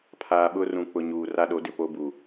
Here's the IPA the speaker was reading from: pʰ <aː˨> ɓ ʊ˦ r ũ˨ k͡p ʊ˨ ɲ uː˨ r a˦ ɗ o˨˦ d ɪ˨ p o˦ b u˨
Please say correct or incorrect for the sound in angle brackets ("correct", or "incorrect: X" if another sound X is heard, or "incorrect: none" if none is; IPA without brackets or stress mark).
correct